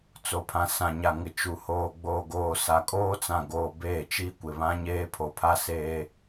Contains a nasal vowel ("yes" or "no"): yes